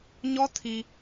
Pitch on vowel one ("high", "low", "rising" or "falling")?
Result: high